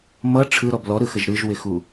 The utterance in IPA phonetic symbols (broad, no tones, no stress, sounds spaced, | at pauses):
m ʌ ʈ͡ʂʰ ɯ ɾ ɔ b l ɔ ɾ ɯ x ə ʒ ɾ ɯ ʒ w ɪ x u